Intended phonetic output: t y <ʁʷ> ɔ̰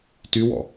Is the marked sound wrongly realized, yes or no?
yes